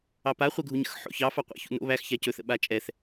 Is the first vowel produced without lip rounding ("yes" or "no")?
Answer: yes